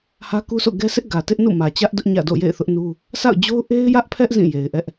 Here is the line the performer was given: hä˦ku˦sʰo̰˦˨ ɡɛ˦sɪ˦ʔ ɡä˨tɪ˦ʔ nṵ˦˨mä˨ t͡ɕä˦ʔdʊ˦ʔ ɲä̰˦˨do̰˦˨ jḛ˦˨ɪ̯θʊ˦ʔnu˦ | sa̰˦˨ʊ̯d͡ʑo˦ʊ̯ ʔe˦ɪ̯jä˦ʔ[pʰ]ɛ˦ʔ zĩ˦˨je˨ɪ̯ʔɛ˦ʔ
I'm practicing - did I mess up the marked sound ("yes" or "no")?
no